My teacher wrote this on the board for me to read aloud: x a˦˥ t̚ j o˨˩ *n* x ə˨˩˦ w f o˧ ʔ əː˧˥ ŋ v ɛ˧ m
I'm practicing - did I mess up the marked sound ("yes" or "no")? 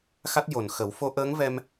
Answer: no